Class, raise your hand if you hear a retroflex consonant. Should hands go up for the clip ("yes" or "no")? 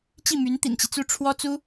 yes